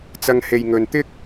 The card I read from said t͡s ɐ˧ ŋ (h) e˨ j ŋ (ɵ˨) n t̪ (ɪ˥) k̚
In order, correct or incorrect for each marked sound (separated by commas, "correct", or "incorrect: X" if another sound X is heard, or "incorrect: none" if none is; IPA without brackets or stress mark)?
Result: correct, correct, correct